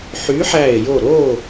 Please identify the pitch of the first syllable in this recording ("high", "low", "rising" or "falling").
rising